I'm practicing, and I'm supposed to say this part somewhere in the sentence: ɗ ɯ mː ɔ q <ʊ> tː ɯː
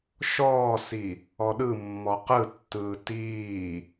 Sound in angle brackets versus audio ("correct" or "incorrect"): incorrect